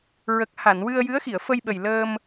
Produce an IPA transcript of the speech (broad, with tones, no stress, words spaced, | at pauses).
ɹə˨˩k̚ha˨˩˨nwɨ˧ə̯ jɨ˧˥ə̯xi˨˩˨ə̯fə˧jɓə˨˩j ləː˧m